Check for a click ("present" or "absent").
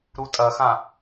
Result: absent